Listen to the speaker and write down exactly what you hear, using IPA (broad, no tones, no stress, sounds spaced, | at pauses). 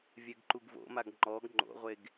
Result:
vʲ ɛ ɡ ǃ u ɡ v o̰ m a ɡ ŋ͡ǃ ɔ ɡ ŋ͡ǃ o̰ ʁʷ e ɡ